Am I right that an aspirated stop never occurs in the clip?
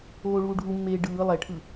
no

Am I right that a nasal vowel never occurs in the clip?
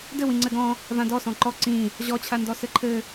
no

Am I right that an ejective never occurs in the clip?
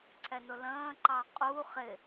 no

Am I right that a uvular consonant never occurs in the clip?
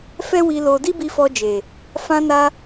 yes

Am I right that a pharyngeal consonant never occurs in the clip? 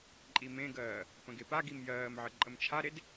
no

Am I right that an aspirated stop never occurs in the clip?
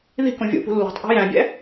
yes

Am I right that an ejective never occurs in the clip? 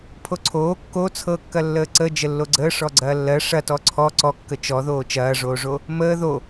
yes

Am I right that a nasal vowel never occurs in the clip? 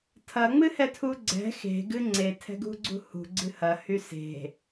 yes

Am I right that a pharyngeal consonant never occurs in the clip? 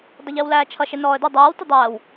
yes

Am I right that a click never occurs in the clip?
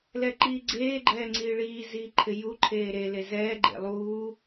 no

